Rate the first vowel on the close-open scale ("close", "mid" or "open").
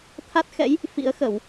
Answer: open